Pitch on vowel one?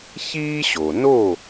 high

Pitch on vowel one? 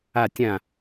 falling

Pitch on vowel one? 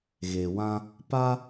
low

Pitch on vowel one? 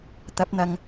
rising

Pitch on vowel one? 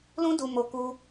high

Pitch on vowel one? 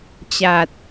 low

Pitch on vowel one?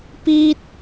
high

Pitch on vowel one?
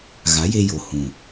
rising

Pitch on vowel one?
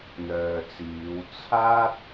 low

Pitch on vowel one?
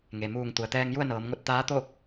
low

